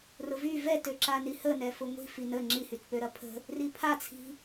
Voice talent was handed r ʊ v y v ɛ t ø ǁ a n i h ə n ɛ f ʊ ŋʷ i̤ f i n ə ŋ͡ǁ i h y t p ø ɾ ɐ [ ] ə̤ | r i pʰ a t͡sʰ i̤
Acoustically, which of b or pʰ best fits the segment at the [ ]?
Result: pʰ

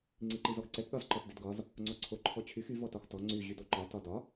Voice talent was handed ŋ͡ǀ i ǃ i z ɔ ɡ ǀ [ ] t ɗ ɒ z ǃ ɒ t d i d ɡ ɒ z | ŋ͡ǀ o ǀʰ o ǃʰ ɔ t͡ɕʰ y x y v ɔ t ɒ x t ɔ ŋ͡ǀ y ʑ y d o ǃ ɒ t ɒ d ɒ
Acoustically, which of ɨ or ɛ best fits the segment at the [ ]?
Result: ɛ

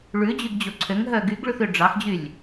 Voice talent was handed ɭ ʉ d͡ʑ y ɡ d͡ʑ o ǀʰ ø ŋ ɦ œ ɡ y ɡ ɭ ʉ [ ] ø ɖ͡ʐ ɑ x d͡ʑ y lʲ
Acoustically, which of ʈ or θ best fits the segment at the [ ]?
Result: θ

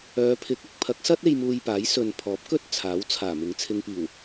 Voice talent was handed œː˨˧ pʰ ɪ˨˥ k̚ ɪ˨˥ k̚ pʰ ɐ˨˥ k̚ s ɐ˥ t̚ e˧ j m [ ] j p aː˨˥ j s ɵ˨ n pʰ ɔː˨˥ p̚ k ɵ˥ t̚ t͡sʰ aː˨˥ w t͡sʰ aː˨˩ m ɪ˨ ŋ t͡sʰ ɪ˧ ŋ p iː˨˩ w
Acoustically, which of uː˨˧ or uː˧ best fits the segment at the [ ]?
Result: uː˧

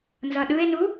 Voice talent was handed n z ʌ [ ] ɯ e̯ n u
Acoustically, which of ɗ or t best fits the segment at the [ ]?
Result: ɗ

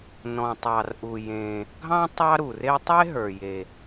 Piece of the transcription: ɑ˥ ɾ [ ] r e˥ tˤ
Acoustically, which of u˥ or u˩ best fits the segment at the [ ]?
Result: u˩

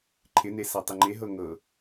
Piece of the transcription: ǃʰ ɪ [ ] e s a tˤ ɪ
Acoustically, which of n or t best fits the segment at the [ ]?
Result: n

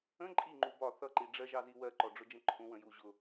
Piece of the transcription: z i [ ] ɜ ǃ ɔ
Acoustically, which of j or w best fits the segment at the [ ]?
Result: w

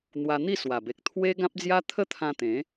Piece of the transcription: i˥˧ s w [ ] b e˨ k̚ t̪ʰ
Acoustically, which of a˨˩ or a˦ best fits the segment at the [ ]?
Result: a˨˩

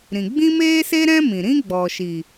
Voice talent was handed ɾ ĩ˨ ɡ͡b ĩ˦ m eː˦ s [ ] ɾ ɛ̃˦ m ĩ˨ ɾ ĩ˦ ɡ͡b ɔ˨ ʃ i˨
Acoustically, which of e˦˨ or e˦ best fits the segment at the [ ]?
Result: e˦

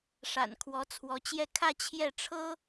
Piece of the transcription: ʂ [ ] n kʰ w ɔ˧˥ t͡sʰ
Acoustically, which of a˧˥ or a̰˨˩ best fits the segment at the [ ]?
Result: a̰˨˩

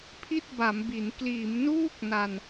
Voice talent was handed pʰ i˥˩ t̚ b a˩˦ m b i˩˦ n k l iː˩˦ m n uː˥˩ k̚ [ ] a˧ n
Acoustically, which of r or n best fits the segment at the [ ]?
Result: n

